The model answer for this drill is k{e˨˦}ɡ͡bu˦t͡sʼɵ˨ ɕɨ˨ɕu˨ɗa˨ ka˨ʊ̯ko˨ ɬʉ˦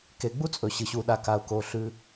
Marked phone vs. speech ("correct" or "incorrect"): correct